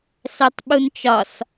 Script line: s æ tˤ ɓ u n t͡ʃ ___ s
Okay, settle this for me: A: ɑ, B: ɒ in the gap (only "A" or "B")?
B